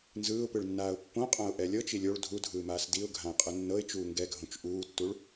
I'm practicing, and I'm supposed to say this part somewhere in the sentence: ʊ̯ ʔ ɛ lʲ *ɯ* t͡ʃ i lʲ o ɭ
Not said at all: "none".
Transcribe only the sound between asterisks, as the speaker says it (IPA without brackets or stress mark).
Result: ɤ